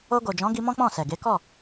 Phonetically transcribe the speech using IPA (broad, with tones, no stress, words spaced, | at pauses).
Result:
o˧ɡo˨d͡ʒɔ̃˨˦ɡi˧ mɔ̃˦k͡pɔ̃˦˨sɛ˨ ɡe˨˦kɔ˦˨